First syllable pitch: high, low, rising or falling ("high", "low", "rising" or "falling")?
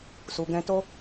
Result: low